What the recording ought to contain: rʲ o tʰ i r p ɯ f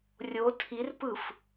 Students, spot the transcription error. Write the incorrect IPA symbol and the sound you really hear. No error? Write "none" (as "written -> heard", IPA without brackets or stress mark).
none